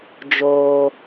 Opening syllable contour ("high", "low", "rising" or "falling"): high